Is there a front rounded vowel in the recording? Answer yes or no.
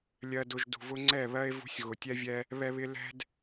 no